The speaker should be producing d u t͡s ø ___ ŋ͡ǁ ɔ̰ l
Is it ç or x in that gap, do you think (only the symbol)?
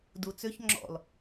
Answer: ç